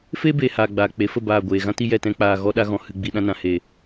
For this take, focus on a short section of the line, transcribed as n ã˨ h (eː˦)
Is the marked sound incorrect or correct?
incorrect